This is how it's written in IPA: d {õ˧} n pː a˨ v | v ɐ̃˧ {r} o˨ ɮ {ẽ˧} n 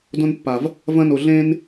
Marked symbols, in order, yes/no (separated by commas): yes, no, yes